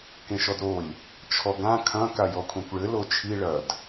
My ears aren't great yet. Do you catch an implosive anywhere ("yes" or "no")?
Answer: no